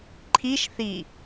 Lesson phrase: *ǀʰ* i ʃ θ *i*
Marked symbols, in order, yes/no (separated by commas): no, yes